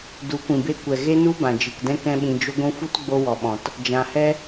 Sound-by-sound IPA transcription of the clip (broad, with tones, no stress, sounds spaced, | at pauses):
d u˨˦ kʷ ĩ˨ b e˧ kʷ ɛ˨ ɣ e˦ n u˦ b ã˨ d͡ʒ ɨ˨ k d ɛ̃˦ k ɛ̃˦ ɓ ĩ˧ d͡ʒ o˦ ɡʷ ũ˧ f u˦ t ɡ͡b o˧ w ɔ˨ ɓ ɔ̃˨ t | d͡ʒ ã˨ h ɛ˦